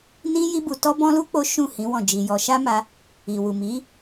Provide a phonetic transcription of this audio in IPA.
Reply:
n ĩ˦ j i˦ b u˧ t ɔ˦ b ɔ̃˦ l u˦ k͡p o˦ ʃ ũ˦˨ h ĩ˨˦ w ɔ̃˦˨ d͡ʒ i˧ j ɔ˧ ʃ a˦ m a˧ | i˨ w u˨ m i˨˦

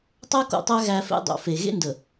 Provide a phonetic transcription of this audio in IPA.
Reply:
tˤ æ˦ k o̰˨ tˤ æ˦ ɣ æ˦ f ḛ˦ dˤ o̰˨ f e˨ ɣ ḛ˦ n d ə˨

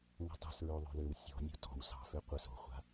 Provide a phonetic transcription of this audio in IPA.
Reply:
ŋ o̤ tˤ ṳ s ɹ ø ðˤ o̤ ð ø w sʲ ɔ̤ nʲ o̤ t ɔ̤ w s ɑ̤ f ø qʷ ɘ s o̤ χʷ a̤

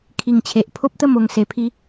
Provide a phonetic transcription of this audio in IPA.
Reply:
kʰ i˨˩ ŋ t͡ɕʰ e˨ ʔ pʰ o˦ p̚ t̪ ə˥˧ m o˧ ŋ s e˧ pʰ i˦

